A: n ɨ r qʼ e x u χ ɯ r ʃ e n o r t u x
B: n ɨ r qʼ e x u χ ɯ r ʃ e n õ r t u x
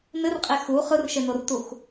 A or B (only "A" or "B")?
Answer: A